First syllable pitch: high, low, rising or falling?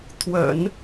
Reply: low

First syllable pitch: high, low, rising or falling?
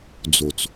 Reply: low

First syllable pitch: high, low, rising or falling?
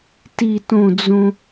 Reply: falling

